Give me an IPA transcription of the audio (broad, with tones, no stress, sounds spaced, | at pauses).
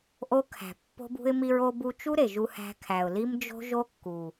ʔ o˦ kʰ æ̤˨ pː o̤˦ b ṳ˦ ɪ̯ m i˧ ɹ o˧ b u˧ t͡ʃ u˦ ɾ e˨ ʒ u˧ h æ̤˧ kʰ æ˨ ʊ̯ l i˦ m d͡ʒ o̤˦ ʒ o˦ kː u˨